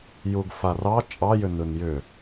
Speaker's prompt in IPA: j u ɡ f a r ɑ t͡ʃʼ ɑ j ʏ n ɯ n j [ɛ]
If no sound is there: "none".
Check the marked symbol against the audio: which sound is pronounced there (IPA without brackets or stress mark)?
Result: ʏ